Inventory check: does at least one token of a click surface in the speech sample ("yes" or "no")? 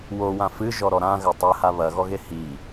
no